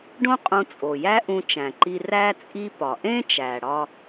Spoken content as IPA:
ɖ õ˥ qʼ ũ˧ t͡sʼ o˩ j æ˥ ʔ ũ˧ t͡ʃ æ̃˩ ǃ i˧ r æ˥ t͡sʼ i˥ p ɒ˩ ʔ ẽ˥ t͡ʃ æ˩ ɽ ɒ˥

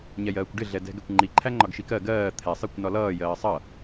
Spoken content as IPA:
ɲ ɛ j ɜː kʷ ɖ ɪ ɮ ɛ d ɛ̤ ɡ ɛ kʷ ŋ͡ǃ i ǃʰ æ ŋ͡ǃ ɒ ɡ ʃ i k ɜ ɡ ɜː t̪ʰ ɛ sˤ i kʷ n ɒ l ʌː j ɜː sˤ ʌ

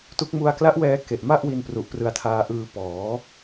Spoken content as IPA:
t u˦˥ k̚ m u˧ a̯ k l a˦˥ ʔ w ɛː˧ k e˨˩ ʔ m a˥˩ ʔ w i˧ n p r u˨˩ ʔ p r ɯ˧ a̯ tʰ aː˧ ʔ ɯː˧ p ɔː˩˦

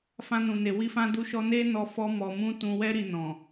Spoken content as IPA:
f ã˧ n ũ˨ n e˨ w i˧ f ã˧ d u˧ ʃ ɔ˧ n e˧ n ɔ˧ f ɔ˦ m ɔ˧ m ũ˦ t ũ˧ w ɛ˦ ɾ i˧ n ɔ̃˨

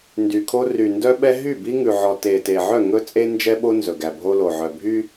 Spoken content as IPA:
n d y˨ kʰ o˦ r y˨ n d œ˦ ɓ ɛ˦ ɦ y˦˨ b i˦ ŋ ʉ˨ ʕ ɔ˨ t e˨ t e˨ ʕ œ˦˨ ŋ ɵ˦ t͡sʼ e˦ n d͡ʒ ɛ˦ ɓ o˦ n z ɵ˨ ɡ æ˨ bʱ o˦ l o˨ ʕ œ˨ bʱ y˦

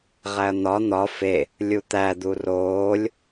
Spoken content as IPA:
ʁ æ ɐ̯ n̪ ɒ n̪ ɒ f e | lʲ u t̪ æ d̪ u r oː lʲ

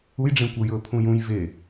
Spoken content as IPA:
u j ɖ͡ʐ ẽ kʷ ɐ j ɵ pʰ ũ j ũ j v e

